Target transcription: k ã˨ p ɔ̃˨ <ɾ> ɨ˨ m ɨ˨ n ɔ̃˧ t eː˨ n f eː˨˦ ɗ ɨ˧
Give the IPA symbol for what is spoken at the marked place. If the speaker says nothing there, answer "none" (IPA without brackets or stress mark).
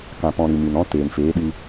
ɾ